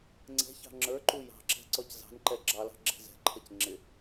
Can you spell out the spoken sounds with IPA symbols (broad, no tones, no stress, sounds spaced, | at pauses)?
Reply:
ŋ͡ǀ ɛ̤ ç ɑ̤ ŋ͡ǁ ə˞ ǃ u j ɑ̤ ǁ ɛ̤ ǀ ɔ c z ɑ̤ n ǃ ɛ ɡ͡ǁ ɑ l ɑ̤ ɡ͡ǁ ɛ̤ z ɛ̤ ǃʰ ʌ c ŋ͡ǁ ɪ